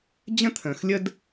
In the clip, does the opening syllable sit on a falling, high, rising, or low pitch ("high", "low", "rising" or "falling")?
high